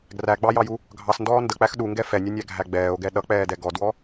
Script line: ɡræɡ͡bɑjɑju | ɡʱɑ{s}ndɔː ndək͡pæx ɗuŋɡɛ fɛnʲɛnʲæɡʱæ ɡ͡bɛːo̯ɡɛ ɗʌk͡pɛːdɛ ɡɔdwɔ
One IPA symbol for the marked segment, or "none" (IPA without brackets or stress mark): s